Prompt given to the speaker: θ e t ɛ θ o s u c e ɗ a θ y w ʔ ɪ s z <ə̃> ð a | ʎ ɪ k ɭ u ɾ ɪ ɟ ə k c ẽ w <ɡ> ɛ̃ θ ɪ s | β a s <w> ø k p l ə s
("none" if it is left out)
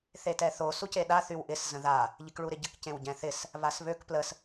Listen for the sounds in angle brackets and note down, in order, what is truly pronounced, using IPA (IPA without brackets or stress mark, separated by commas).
ə̃, ɟ, β